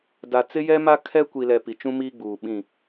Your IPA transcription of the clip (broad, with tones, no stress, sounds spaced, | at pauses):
d a˨ t͡s ɪ˦ j ɛ˦ m a˦ kʰ ɛ˦ kʷ i˨ l ɛ˨ p i˨ t͡ʃ ũ˦ m iː˦ ɡ͡b uː˨ ɓ ĩ˦˨